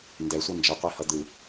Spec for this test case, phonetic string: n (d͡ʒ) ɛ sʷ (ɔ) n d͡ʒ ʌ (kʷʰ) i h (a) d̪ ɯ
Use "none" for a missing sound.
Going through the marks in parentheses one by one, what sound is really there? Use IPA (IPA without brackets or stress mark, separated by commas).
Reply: d, ʌ, qʷ, ʌ